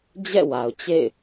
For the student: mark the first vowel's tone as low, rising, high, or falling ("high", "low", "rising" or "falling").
falling